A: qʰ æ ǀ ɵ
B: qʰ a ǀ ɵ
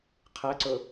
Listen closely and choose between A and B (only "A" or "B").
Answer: A